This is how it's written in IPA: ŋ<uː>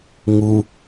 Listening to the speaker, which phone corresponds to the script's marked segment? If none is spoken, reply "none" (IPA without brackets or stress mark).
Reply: u